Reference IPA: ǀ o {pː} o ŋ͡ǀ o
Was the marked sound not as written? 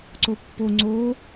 no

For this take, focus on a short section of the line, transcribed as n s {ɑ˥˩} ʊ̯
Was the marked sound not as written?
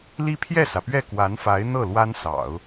yes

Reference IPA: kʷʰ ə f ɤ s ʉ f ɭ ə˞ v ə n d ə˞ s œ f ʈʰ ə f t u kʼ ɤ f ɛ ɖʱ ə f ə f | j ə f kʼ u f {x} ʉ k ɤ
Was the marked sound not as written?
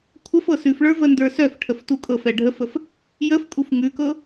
yes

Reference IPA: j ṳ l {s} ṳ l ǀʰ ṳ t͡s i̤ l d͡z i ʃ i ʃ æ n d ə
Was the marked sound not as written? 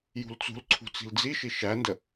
yes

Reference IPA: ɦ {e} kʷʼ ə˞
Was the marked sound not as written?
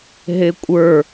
no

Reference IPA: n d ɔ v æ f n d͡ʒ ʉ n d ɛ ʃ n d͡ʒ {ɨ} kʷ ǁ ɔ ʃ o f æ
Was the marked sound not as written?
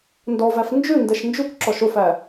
yes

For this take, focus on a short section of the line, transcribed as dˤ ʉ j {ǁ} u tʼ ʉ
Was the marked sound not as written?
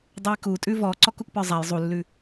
yes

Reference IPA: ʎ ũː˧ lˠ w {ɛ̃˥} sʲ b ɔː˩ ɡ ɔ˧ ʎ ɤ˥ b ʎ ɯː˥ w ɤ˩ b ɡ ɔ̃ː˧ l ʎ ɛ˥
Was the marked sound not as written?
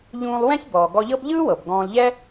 no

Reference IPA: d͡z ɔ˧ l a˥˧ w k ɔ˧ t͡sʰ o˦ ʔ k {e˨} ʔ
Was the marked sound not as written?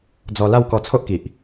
yes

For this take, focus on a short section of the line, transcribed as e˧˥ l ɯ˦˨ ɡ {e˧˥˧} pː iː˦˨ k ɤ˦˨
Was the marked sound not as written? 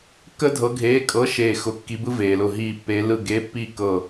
no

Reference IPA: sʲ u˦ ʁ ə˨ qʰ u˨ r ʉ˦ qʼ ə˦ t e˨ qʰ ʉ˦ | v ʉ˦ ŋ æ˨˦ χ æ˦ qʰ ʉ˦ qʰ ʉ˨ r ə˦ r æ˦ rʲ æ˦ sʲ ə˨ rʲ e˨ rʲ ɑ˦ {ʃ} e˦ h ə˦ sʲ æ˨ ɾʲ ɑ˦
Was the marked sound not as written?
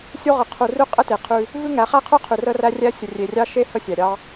no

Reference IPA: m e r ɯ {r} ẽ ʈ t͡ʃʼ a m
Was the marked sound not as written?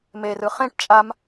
yes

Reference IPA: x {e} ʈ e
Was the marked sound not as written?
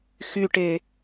yes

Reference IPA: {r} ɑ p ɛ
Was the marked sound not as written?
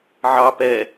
yes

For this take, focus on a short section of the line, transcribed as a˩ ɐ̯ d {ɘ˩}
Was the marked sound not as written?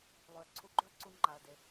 yes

